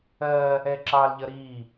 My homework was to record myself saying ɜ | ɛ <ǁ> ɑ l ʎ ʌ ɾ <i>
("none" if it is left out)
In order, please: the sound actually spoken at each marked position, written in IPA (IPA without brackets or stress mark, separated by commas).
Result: ǁ, i